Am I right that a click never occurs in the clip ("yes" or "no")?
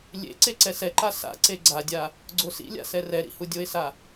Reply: no